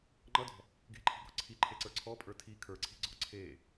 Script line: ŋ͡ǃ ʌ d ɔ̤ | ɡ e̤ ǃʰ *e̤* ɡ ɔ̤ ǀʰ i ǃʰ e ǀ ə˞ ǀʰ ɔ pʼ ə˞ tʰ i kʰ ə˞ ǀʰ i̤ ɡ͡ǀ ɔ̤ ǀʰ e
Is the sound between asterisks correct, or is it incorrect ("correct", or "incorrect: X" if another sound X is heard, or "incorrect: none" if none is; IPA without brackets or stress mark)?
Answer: incorrect: i̤